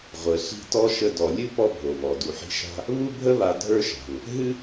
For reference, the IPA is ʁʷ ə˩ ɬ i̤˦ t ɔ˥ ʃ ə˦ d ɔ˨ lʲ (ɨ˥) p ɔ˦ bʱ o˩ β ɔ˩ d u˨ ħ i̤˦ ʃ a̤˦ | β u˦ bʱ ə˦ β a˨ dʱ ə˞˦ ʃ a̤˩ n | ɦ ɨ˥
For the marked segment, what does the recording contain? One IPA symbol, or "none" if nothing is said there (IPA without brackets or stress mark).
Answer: ɨ˥